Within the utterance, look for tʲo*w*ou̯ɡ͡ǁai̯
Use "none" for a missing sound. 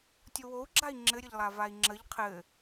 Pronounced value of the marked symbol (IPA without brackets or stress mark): w